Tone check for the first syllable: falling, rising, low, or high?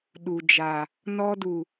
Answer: low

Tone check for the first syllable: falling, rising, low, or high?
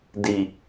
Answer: low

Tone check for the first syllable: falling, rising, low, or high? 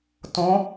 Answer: rising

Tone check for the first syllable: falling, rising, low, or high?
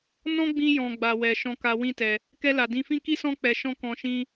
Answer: high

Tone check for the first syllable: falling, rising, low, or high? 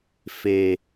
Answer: low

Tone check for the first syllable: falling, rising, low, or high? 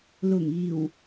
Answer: low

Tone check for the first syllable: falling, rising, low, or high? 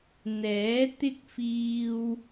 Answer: rising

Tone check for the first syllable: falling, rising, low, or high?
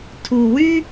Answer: low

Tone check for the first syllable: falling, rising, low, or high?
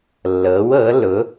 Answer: rising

